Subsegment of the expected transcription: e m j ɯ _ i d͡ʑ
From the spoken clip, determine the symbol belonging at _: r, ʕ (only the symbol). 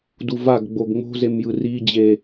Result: r